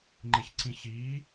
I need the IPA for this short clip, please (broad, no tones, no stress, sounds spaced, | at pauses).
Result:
ŋ͡ǃ e ç ǀ ĩ ç iː